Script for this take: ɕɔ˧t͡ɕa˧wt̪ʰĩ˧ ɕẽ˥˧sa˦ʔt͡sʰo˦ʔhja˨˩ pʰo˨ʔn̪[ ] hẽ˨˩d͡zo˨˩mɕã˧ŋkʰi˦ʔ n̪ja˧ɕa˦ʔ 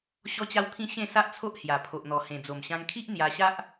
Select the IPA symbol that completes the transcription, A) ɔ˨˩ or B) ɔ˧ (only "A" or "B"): A